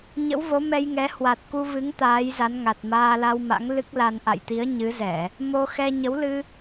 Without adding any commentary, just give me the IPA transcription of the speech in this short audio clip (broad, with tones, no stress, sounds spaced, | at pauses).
ɲ ə̰˧˥ w v o˨˦ m ɛ˧ j ŋ ɛ˨˦ h w a˨˩ t̚ k u˧ v ɨ˨˦ ŋ t̪ aː˨˦ j z a˨˦ n ŋ a˨˩ t̚ m aː˧ l a˧ w m a̰˧˥ ŋ l ɨ˦˥ k̚ l a˧ n ʔ a̰˧˨ j t̪ i˨˦ ə̯ ɲ ɨ˨˦ z ɛ˧˩˨ | m o˧ x ɛ˧ ɲ ə˨˦ w l ɨ˧